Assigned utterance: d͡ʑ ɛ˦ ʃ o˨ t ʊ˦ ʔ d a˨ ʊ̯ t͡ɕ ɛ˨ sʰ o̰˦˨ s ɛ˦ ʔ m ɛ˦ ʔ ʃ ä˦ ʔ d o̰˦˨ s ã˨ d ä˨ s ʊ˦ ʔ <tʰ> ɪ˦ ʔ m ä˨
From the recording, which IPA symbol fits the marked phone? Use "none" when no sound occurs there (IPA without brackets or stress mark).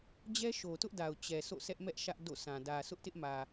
t